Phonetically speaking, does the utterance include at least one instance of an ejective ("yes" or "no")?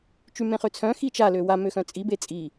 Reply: yes